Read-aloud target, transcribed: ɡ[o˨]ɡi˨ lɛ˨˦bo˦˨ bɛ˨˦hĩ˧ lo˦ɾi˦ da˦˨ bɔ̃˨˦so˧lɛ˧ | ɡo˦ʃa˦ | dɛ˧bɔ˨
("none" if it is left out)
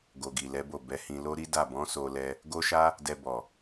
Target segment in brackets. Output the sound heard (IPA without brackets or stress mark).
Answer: o˨